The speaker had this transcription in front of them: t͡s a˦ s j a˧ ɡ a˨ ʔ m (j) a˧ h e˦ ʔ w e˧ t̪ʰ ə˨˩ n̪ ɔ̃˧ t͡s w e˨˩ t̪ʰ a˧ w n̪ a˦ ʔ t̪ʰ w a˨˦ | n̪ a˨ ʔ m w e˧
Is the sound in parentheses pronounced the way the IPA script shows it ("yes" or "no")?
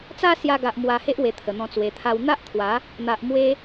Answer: no